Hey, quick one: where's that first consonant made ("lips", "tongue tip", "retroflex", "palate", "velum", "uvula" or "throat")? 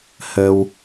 throat